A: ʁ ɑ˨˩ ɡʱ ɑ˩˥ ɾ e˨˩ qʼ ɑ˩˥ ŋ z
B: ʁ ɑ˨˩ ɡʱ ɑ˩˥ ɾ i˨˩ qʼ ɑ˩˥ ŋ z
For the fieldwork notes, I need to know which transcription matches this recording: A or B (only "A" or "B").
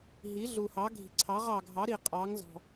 B